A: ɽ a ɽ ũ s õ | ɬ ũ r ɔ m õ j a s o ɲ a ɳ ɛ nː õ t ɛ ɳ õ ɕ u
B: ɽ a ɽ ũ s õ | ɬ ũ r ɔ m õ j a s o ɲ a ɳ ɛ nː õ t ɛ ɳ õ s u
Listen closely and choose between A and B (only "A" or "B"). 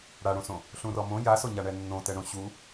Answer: A